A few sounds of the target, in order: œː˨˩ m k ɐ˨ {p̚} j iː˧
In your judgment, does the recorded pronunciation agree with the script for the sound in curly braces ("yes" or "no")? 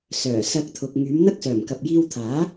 yes